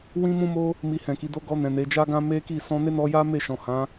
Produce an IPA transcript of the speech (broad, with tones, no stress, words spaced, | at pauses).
wĩ˦mũ˦mo˦ | mi˧hɛ̃˨ki˨˦do˦ ɡɔ˧nɛ̃˨ ne˨˦d͡ʒa˦ɡã˦ me˦ki˦˨ sɔ̃˧ ne˦nɔ˧ja˦ me˦˨ʃɔ̃˨hã˨˦